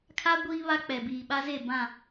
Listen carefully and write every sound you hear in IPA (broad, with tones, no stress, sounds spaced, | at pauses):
kʰ a˦ ɡʷ iː˦ β a˦ k͡p ɛ˨ b iː˨ ɓ a˦ z e˦˨ b ã˦˨